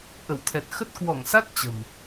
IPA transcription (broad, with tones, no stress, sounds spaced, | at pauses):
ʔ ə˧˩ w t̪ʰ ɛ˨˩ t̚ x ə˦˥ t̚ k w ɔ˧˩ ŋ s a˦˥ t̚ t͡ɕ ə̤˨˩ m